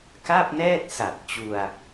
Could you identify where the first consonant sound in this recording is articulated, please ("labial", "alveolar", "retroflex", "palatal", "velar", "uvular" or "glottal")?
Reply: velar